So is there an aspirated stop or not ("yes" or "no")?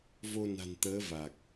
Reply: no